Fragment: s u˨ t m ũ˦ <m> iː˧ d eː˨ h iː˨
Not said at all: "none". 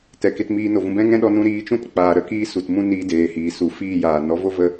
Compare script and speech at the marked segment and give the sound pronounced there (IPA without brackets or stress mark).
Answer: n